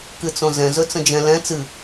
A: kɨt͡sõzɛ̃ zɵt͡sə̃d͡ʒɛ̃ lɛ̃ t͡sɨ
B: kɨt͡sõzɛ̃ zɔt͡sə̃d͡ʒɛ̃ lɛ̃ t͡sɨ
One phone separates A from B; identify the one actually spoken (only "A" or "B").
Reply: A